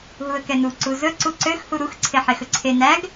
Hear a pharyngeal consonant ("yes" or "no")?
yes